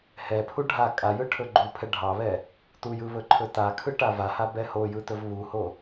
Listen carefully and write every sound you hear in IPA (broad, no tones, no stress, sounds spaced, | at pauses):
h ɛ pʰ u ɖʱ a kʼ a j ɯ ʈʰ ɵ ɡ͡ǃ u pʰ ɛ ɖʱ ɑ β ɛ | t u j ɯ β ɵ ǃʰ ɵ t a kʰ ɯ ʈ a v a h a b ɛ h o j ɯ t ɵ v β u h o